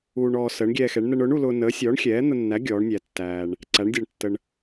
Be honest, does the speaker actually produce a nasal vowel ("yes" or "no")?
no